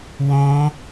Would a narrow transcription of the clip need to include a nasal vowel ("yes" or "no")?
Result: yes